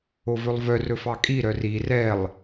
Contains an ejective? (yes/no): yes